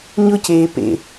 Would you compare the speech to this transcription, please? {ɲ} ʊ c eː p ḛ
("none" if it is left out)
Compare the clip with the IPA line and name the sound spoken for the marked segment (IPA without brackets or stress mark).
ɲ